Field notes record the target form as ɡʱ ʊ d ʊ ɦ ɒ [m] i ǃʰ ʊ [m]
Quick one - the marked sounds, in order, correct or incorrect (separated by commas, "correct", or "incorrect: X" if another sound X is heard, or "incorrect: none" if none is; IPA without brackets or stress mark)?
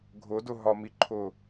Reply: correct, incorrect: none